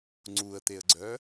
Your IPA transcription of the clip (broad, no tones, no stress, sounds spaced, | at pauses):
ŋ͡ǀ u ə̯ t̪ e ə̯ ɡ͡ǀ œ